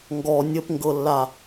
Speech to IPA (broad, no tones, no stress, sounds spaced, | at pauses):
ŋ ɡ ɔ nʲ ə p ŋ ɡ ɤ lː a